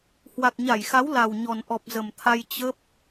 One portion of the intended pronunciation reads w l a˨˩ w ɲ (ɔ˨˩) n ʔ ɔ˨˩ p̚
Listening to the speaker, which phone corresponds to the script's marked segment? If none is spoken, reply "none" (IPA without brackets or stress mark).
ɔ˨˩